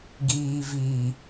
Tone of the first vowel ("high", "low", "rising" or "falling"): low